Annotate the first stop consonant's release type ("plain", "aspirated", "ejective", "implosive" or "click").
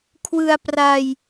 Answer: aspirated